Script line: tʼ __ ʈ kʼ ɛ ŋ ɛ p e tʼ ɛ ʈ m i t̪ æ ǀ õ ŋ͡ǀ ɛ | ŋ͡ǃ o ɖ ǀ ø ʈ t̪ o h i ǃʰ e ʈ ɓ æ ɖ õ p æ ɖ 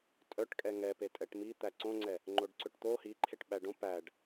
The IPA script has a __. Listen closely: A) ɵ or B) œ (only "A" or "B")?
B